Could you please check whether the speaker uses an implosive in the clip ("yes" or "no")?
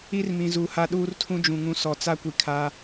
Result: yes